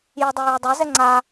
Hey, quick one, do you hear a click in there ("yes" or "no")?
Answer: yes